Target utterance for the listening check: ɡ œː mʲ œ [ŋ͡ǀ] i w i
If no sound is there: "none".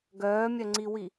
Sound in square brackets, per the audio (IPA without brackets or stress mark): ŋ͡ǀ